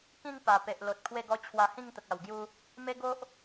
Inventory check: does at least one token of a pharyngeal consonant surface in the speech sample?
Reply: no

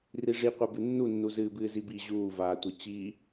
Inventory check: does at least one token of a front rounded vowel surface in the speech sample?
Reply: no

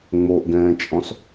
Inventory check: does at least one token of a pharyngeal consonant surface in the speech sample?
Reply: no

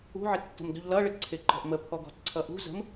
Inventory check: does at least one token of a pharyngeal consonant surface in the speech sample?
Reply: yes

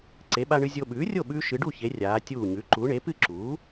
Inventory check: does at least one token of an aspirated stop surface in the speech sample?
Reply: no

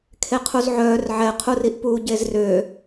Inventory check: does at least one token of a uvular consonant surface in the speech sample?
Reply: yes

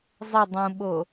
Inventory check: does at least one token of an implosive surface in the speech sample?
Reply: yes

